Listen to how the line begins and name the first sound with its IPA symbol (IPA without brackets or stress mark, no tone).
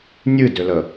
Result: nʲ